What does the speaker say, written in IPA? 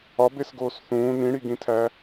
ɒ b e s ɡ oː s θ ũː n ĩ ɽ i ɡ ĩ tʰ æ

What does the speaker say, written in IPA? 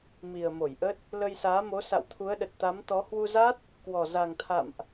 m i˨˩ ə̯ m o˧˩ j ʔ ə˦˥ t̚ | l ə˧ j s aː˨˦ m o˨˦ s a̰˧˨ w t̪ʰ u˨˦ ə̯ ɗ ə˨˩ t̚ t̪ a˨˦ m t̪ ɔ˨˦ h w u˧ z a˦˥ t̚ | k w ɔ˨˩ z a˨˩ ŋ t̪ʰ a̰˧˨ m ʔ

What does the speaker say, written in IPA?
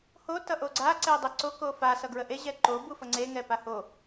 h o t ʌ ʔ o ɡ͡ǀ a ǀ ɛ dˤ ə ǀ o k o f a s ʌ ɡ ɹ ə ʔ e ʑ ɛ ǃ o b u f ʌ ŋ͡ǀ e ŋ ɛ p a h o

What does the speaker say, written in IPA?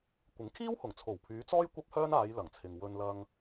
kʷ ɪ˨˥ ŋ kʰ iː˥ w h ʊ˨˩ ŋ t͡sʰ o˨˩ w pʰ yː˨˧ t͡s ɔː˥ j kʷ ɐ˥ p̚ h œː˥ n aː˨˧ j l ɐ˨˩ ŋ t͡sʰ ɪ˨ ŋ w ɵ˧ n l ɐ˧ ŋ

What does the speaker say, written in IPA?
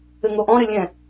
ɘ ŋ o ʔ ɔ̃ ɾ ɘ lʲ ɛ̃

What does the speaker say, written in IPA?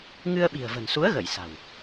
ŋ ɨ˧ ə̯ ɓ i̤˨˩ ə̯ v ə̤˨˩ n s u˨˦ ə̯ ɣ ə˧˩ j s a̤˨˩ w

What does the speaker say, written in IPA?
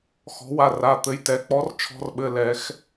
x ɔ̤˩˥ w a˩˧˩ r a˩˧˩ t̪ ɘ˩˧˩ j t ɛ˩˥ k͡p ɔ˩˥ r t͡ʃʰ ɔ̤˧ r ɓ ɘ˩˧˩ l ɛ˨˩˦ x

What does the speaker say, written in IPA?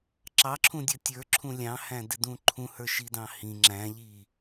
ǁ ɑ ǁʰ ũ dʲ ʌ tʲ ə˞ ǁʰ ũ lʲ ɑ̃ h æ̃ d ɪ d ũ ǃʰ ũ h ə˞ ʃ i d ɑ̃ h ĩ ŋ͡ǁ æ̃ ʎ i

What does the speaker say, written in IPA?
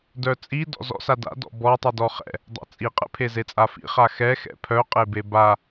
d œ t͡sʼ i d ɔ̰ z ɔ̰ s a d a̰ d ɔ̰ b ɔ tˤ i d ɔ χ ɛ̰ | dˤ a̰ t͡sʼ i qʼ ɛ̰ pʰ e z e t͡sʼ a f ḭ χ a x ɛ x ɛ̰ pʰ œ qʼ e b e b a

